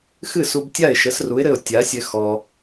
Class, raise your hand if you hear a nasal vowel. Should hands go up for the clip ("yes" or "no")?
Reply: no